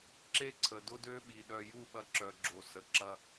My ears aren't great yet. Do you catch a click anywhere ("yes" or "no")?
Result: yes